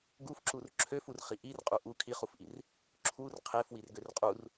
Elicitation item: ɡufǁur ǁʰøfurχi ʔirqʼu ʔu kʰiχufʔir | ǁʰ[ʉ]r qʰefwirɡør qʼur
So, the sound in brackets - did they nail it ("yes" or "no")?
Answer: no